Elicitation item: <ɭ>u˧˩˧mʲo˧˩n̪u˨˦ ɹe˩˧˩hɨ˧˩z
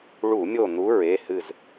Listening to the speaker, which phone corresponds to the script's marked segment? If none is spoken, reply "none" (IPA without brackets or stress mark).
ɭ